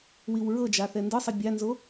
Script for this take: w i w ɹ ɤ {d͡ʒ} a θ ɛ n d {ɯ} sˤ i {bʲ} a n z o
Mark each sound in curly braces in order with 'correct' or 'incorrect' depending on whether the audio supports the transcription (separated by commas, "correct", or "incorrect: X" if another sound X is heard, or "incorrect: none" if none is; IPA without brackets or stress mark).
correct, correct, correct